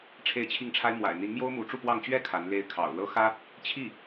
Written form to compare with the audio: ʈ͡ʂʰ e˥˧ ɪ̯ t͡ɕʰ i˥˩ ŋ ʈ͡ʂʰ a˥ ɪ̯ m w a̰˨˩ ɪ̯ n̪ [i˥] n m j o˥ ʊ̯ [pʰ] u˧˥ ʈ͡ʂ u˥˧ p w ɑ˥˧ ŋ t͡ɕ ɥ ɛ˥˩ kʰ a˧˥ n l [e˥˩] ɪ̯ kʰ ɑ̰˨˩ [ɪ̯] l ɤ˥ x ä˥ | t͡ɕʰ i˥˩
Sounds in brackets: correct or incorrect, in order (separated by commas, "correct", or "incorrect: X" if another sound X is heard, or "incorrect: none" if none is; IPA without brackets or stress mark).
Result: incorrect: i˧˥, incorrect: m, incorrect: e˧˥, incorrect: ʊ̯